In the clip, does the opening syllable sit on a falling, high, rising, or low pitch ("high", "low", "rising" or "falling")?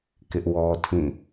high